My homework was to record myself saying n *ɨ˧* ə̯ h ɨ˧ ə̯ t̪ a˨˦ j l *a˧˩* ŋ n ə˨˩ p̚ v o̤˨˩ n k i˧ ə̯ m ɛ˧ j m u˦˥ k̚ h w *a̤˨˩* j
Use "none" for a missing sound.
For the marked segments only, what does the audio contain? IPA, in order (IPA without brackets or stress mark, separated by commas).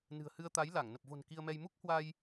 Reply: ɨ̤˨˩, a˧˩, a˧